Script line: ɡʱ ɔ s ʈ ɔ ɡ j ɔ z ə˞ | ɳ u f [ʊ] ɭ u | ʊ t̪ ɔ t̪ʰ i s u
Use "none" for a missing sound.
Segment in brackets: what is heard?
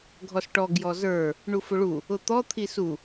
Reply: ʊ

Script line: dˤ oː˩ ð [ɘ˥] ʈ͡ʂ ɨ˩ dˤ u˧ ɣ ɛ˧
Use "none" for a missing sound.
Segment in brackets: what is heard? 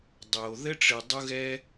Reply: ɘ˥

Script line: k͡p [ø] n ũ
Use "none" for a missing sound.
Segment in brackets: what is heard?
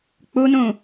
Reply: u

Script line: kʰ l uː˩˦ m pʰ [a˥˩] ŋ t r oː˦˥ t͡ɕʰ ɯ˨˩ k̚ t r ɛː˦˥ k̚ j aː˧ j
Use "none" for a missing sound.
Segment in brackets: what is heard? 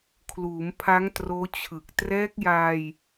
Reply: a˦˥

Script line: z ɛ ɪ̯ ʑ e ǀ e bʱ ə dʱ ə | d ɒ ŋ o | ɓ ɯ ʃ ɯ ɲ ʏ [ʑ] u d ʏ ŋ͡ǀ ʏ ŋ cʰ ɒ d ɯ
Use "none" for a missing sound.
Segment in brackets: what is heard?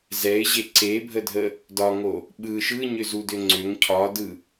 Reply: z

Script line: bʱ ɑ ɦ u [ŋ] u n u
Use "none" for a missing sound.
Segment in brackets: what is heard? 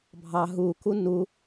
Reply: k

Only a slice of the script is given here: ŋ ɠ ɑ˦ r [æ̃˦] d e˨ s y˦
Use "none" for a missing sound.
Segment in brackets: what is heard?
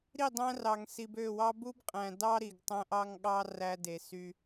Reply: æ˦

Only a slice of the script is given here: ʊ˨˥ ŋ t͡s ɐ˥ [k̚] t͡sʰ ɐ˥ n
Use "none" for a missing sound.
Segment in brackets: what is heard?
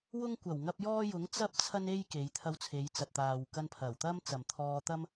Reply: p̚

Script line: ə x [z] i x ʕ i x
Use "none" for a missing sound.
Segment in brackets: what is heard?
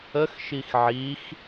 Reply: ʃ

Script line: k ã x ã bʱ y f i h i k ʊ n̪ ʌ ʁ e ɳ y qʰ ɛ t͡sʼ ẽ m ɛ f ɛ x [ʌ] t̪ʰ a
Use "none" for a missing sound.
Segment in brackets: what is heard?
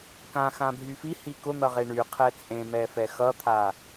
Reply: ʌ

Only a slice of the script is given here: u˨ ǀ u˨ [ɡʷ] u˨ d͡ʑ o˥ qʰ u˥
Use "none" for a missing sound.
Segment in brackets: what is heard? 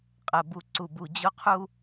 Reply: b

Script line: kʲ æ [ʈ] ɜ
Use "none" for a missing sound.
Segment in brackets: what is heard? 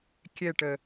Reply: ʈ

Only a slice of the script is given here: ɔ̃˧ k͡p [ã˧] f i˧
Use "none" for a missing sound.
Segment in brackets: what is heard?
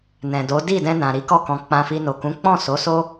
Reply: ã˧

